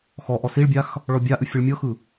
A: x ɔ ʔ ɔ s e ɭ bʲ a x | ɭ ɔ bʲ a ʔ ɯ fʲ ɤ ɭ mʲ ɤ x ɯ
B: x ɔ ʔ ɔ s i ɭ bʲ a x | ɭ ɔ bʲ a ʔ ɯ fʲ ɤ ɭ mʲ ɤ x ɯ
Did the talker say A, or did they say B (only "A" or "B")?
B